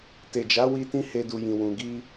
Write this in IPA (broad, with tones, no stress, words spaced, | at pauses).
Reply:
te˨d͡ʒa˨˦wi˧ tĩ˦he˧du˨jĩ˨ wũ˨ ɡi˧